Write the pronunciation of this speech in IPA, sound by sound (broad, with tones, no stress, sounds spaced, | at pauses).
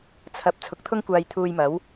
t͡sʰ ɐ˧ p̚ t͡sʰ ʊ˨˥ k̚ t̪ʰ ʊ˥ ŋ kʷ aː˧ j t̪ʰ uː˧ j m ɐ˨˥ w